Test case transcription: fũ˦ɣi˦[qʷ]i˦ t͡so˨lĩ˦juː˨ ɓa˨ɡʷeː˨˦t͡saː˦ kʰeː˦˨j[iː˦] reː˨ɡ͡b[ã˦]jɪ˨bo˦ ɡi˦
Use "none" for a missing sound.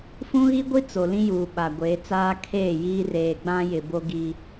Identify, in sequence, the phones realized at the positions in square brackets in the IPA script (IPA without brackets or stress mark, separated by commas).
ɡʷ, iː˦, ã˦